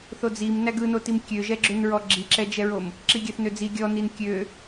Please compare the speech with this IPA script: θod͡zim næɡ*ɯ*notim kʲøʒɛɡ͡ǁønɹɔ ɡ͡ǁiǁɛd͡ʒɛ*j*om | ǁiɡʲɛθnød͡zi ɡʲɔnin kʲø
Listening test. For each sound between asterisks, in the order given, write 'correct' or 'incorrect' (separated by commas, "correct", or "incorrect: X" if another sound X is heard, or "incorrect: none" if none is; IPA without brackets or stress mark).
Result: correct, incorrect: ɹ